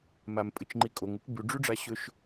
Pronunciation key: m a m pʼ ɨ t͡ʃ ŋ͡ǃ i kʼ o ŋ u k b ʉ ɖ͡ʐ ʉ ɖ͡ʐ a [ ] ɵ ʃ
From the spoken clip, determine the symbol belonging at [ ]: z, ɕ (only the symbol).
ɕ